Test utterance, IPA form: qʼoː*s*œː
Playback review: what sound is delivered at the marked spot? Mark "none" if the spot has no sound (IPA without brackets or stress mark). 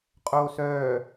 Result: s